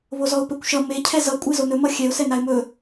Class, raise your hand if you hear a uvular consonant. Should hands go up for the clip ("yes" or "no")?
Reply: no